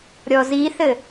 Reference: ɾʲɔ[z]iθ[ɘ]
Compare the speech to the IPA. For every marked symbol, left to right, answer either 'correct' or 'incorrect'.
correct, correct

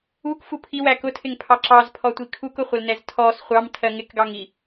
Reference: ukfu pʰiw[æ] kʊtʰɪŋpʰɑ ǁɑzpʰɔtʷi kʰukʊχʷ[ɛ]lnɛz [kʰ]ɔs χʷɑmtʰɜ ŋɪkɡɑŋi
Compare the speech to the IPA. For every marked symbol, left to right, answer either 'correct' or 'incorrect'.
correct, incorrect, incorrect

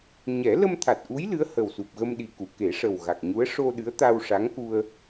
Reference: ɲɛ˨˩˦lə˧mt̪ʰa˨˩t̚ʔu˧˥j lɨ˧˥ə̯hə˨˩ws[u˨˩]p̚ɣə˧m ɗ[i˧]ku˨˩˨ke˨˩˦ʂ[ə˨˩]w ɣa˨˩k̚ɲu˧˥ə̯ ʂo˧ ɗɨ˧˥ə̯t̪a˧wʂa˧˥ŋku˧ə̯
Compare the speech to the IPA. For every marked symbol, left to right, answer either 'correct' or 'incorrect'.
correct, incorrect, correct

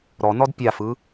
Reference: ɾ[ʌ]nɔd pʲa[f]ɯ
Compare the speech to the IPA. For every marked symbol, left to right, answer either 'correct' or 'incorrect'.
incorrect, correct

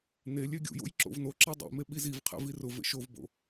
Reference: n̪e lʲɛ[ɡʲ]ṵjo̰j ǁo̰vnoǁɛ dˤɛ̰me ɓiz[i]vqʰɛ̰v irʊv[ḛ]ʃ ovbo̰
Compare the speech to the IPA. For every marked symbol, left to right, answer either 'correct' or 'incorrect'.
correct, correct, correct

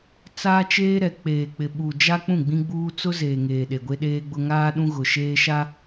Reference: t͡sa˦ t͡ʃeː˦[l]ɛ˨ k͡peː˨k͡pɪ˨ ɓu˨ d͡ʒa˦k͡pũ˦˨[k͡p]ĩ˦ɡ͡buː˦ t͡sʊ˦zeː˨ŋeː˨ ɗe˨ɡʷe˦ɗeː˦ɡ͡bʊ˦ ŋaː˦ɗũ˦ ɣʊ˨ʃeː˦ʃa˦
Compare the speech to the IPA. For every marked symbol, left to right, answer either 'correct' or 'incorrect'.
incorrect, incorrect

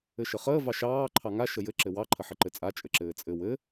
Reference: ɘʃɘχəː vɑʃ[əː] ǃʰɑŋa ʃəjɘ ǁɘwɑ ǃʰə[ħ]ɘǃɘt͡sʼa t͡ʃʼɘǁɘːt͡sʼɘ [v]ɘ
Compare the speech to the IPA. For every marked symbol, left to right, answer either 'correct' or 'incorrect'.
incorrect, correct, incorrect

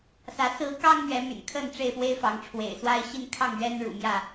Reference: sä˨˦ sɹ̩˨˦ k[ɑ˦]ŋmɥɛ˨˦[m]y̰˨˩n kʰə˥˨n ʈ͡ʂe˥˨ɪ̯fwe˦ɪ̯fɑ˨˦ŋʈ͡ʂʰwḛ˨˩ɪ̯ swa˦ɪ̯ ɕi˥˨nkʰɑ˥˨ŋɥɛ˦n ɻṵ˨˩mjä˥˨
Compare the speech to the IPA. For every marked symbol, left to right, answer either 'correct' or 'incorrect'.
correct, correct

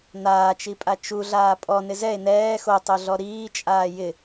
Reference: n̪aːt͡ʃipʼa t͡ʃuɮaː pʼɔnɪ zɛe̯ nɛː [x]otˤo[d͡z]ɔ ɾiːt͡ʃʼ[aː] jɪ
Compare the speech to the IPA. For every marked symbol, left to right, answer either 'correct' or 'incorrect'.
correct, incorrect, correct

